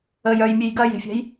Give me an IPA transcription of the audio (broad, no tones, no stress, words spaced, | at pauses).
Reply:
əjœjmʲej ɡɐje̤fʲa̤j